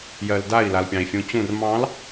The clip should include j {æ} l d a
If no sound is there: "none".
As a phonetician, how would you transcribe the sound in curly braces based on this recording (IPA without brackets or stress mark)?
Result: ɜ